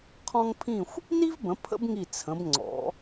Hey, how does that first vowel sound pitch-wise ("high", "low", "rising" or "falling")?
high